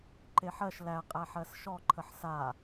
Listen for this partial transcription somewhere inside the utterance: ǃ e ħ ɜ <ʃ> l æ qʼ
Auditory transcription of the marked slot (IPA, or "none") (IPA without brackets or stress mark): ʃ